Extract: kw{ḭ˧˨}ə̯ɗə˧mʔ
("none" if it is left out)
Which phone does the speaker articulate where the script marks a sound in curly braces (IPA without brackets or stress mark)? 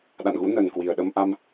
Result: i˨˩